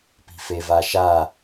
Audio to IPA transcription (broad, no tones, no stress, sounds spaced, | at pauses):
p i̤ f e v a ʃ a